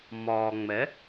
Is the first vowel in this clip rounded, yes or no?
yes